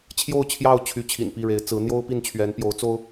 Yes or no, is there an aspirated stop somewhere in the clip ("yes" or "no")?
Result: yes